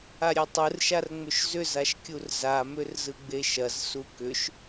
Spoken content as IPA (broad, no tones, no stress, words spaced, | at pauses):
aɾʲetˤɯrʃar ŋ͡mʏʃzʏzaʃkʲur zamʏr zɯɡ͡beʃɐz sukʏʃ